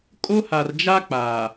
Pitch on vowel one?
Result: high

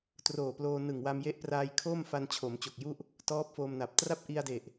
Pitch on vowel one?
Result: low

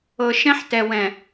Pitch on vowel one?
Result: low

